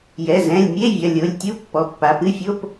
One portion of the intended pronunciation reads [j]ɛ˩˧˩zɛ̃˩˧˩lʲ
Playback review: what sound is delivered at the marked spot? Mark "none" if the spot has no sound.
j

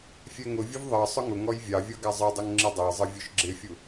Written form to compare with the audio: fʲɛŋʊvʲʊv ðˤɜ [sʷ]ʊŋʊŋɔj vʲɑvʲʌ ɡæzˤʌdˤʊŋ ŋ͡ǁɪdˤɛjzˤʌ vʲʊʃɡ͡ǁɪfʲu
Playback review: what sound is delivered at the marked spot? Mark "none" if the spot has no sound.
sˤ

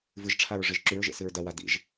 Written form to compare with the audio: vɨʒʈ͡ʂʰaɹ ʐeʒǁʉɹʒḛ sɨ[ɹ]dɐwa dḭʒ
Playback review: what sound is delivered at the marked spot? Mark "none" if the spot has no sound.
ɹ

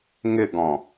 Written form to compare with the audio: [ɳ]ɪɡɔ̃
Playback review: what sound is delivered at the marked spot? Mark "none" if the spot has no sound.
ŋ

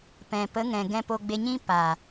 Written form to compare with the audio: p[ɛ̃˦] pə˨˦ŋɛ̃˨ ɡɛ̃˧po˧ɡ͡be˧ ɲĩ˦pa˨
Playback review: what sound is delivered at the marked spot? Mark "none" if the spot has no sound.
ɛ̃˨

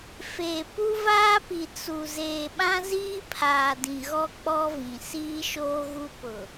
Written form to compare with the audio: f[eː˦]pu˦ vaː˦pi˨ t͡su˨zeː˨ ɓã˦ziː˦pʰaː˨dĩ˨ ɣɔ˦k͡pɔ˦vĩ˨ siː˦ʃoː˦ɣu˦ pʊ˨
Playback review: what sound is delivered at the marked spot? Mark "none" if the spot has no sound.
eː˨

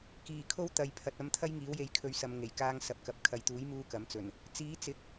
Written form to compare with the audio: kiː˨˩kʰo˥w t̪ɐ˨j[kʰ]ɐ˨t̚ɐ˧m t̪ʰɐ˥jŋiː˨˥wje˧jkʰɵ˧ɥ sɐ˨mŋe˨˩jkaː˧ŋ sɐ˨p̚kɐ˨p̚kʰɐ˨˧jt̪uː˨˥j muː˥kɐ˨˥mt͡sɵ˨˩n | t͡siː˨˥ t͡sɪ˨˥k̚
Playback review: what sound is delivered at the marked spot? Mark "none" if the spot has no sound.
pʰ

